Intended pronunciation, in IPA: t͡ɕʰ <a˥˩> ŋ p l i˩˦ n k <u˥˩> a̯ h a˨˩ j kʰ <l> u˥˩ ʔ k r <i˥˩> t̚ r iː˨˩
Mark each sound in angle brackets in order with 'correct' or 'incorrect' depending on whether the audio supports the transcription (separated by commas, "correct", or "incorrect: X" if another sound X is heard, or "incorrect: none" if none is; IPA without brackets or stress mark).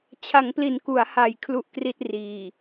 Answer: incorrect: a˩˦, incorrect: u˩˦, correct, correct